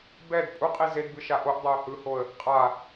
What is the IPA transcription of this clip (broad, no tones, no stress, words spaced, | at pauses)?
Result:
bɛd pʼuqʼi zedbɯʃa ʔoʔdˤaʊ̯ hɯhoə̯ | qʼa